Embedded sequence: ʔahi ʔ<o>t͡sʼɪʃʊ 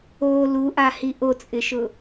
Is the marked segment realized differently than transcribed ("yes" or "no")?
no